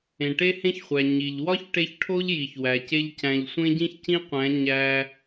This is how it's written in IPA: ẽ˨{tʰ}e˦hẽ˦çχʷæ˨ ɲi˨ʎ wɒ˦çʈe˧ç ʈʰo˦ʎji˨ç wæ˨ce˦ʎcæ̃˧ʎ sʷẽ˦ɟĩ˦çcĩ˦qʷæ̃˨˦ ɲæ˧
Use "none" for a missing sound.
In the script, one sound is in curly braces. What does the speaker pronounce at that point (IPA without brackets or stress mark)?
ʈ